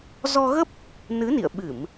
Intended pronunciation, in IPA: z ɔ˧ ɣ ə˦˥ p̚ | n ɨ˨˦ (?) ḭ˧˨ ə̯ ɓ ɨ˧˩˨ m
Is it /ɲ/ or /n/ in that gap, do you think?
n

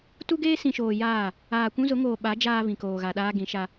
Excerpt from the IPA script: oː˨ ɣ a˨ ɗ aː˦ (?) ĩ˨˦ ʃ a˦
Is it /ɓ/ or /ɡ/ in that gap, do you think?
ɡ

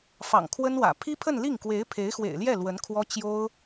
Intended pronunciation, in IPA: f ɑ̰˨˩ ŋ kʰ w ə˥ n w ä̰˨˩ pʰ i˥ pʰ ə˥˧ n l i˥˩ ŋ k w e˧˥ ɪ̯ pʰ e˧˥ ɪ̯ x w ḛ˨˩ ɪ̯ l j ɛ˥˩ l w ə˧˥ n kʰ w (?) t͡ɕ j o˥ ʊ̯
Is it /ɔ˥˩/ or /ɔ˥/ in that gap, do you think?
ɔ˥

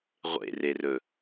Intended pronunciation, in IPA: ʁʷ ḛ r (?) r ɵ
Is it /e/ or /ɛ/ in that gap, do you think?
e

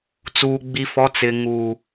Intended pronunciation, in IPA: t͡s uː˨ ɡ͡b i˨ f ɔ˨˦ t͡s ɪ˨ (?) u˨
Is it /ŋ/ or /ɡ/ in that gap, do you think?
ŋ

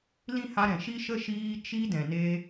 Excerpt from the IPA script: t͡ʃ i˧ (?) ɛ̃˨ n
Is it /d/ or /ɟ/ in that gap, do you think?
d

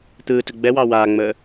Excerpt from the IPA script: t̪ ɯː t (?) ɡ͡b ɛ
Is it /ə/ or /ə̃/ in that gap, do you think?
ə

